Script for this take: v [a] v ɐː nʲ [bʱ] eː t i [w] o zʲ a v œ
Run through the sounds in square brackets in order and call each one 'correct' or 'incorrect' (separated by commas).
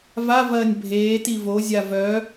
correct, correct, incorrect